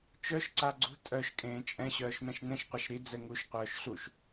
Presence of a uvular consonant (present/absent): present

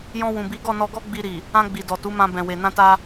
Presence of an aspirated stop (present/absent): absent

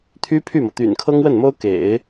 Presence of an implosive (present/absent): absent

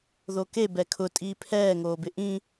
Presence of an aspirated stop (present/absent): present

